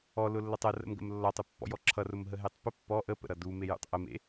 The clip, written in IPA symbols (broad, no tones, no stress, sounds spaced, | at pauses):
ɔ l ʊ lː ʌ tˤ ɤ r ə̰ m ɡ ə̰ m lː ɔ tˤ ʊ pː ɔ̰ j ɔ ǁʰ ʌ r ʊ m ɦ ə ɦ e tˤ p ə pː ɔ ʔ ə p ə̰ ɾ ʌ d u m e j ṵ tˤ ʔ ə m ḛ